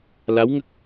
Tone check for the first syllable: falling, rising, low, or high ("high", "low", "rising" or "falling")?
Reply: rising